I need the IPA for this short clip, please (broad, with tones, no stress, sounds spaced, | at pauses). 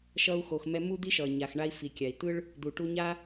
ʃ ʌ˧ u̯ x o˩ x m ɛ˧ m u˥ d̪ i˥ ʃ ʌ˩ ɲ a˩ x ɳ a˧ i̯ f i˩ kʲ a˩ i̯ t̪ ɯ˥ ɭ | d̪ u˩ ʈ u˧ ɲ a˥